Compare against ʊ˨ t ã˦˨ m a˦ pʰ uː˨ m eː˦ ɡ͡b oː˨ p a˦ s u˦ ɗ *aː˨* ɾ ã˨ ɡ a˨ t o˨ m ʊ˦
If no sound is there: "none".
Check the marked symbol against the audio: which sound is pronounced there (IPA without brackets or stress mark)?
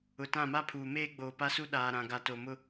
aː˨